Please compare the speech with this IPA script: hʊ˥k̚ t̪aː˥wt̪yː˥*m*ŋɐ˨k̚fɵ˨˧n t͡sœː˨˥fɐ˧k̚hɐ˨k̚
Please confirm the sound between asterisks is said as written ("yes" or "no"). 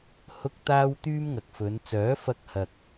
yes